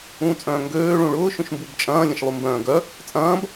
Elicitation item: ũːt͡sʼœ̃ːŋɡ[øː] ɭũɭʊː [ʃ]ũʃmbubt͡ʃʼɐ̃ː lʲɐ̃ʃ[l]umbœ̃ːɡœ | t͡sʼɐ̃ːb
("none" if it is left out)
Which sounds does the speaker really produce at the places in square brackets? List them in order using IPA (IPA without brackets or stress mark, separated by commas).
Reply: øː, ʃ, lˠ